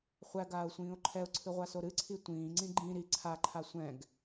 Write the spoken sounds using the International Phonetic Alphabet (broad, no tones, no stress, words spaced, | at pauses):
χʷæɡaːʊ̯sʷĩːʊ̯ ǃʰɛʊ̯ǀʰɨʁʷaso ɾɨǀʰi tʷĩːŋ͡ǀĩ ɡ͡ǃĩ ɾi ǀʰaǃʰa sʷɛ̃ɡ